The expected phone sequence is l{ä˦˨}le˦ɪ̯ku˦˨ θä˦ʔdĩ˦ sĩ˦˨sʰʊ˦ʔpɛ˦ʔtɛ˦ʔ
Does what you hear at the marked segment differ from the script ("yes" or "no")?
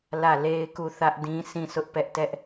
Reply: no